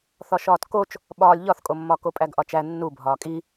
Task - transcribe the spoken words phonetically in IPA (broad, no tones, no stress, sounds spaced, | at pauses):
θ ɒ ʃ ɒː t k o t͡ʃ | ɓ ɒː lʲ ʎ ɒ θ kʼ o mː ɒ k o pʼ æ ɡ ʔ ɒ t͡ʃ æ nː u bʱ ɒː kʼ i